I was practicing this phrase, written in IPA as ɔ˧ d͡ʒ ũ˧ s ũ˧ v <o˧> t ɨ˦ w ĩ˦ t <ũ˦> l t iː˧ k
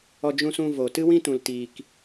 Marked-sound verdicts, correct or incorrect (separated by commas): correct, incorrect